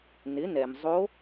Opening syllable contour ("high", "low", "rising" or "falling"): rising